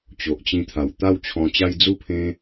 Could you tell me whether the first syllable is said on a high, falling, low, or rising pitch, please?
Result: low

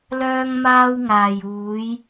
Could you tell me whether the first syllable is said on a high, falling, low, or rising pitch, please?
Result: high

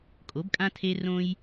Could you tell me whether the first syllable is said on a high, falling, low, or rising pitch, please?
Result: rising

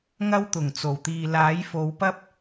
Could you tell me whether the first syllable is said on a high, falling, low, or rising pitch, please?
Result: high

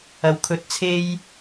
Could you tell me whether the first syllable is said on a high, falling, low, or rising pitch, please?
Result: low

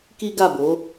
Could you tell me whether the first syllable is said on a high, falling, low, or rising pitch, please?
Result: high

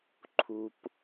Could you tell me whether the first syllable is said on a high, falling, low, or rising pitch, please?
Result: high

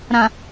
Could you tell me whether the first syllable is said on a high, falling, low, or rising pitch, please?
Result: low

